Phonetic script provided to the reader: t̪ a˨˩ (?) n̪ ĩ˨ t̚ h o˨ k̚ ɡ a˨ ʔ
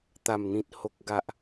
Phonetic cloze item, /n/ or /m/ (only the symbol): m